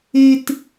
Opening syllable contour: high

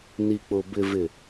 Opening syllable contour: low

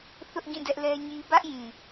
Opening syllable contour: high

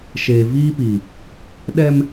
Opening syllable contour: low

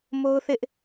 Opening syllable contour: high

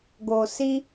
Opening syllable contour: low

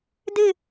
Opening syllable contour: falling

